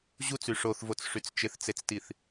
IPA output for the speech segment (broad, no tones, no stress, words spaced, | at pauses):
ʑut͡sy ʂoθvot͡sʂyt͡s t͡ʃɪθt͡set͡stiθ